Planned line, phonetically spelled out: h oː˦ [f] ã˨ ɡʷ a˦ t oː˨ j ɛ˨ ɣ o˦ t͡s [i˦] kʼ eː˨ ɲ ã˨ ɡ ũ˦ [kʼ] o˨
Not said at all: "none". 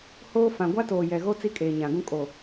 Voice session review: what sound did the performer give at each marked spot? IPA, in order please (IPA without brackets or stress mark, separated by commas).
f, i˦, kʼ